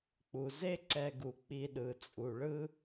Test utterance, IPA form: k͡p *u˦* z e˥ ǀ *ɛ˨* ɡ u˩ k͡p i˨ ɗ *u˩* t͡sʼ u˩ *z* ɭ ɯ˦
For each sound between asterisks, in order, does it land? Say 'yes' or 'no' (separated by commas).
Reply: no, yes, no, no